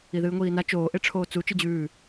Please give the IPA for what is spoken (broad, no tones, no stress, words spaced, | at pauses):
iðɨːŋʷiːna t͡ʃoː ʔeʈ͡ʂʰoːt͡su t͡ʃɨd͡ʑʉː